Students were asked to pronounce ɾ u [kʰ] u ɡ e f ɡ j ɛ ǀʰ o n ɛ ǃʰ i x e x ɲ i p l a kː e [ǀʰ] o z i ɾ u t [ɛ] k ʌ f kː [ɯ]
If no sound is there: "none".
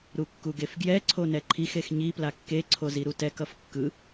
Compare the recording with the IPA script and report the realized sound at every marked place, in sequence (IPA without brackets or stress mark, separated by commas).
kː, ǀʰ, ɛ, ɯ